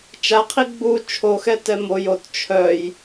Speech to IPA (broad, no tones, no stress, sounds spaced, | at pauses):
t͡ʃ a qʰ i ɡ͡b u t͡ʃʰ o x ɛ t ɛ m o j o t t͡ʃʰ œ j